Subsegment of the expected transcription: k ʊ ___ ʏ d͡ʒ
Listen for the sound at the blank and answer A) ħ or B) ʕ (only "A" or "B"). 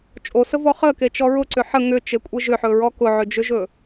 B